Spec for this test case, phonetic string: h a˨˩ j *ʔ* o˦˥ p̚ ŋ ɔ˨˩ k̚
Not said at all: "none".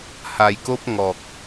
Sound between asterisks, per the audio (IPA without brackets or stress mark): k